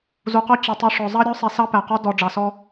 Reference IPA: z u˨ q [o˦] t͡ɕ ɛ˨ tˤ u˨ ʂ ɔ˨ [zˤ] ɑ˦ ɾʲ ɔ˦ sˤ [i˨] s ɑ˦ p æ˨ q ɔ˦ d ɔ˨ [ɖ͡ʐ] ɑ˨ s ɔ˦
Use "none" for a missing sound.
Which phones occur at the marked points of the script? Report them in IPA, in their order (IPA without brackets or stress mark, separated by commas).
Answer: o˦, zˤ, i˨, ɖ͡ʐ